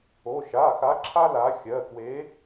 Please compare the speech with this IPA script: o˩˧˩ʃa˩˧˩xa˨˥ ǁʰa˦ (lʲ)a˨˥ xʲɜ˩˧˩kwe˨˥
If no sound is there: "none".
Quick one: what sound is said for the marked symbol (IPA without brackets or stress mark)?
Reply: l